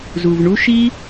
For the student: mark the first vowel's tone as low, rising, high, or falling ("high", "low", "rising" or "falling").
low